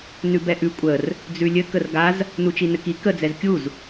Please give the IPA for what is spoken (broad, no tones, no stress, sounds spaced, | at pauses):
n ʉ b ɛ ʔ ʉ kʷʼ ə r | d͡z ʉ lʲ ɘ k ə r ɡ a z | n u t͡ʃ i n ɘ k i k ə d͡z ɛ z kʲ u z